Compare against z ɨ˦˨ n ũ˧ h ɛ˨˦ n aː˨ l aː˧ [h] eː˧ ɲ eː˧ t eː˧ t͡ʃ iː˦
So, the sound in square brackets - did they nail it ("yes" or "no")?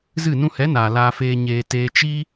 no